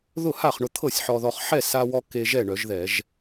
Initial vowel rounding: rounded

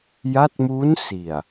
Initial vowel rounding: unrounded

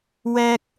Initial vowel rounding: unrounded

